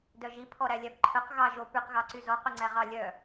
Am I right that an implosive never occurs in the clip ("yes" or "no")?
yes